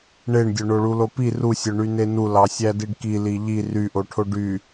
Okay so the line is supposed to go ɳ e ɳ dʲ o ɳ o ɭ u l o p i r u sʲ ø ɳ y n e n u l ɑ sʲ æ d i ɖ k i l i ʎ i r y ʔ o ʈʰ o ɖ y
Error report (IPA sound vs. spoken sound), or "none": none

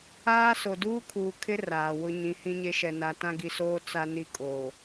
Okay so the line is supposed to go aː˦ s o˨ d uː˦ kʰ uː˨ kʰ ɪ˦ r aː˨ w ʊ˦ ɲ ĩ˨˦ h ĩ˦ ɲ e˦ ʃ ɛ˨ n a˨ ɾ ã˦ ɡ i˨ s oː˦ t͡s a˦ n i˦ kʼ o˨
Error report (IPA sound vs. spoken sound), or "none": ɾ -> t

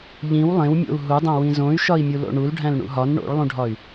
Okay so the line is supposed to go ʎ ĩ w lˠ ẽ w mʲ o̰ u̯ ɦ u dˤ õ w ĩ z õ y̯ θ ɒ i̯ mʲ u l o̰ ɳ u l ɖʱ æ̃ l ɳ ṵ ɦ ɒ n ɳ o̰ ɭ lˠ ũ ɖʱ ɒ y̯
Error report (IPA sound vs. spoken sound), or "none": θ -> ʃ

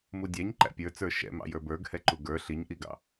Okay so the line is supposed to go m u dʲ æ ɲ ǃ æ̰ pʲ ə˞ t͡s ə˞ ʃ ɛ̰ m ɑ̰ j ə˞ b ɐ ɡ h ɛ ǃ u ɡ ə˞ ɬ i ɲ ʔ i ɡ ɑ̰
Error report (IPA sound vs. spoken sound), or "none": ɐ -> ə˞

